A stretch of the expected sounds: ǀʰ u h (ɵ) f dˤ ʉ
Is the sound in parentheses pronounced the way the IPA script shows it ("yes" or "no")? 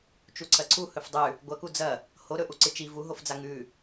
yes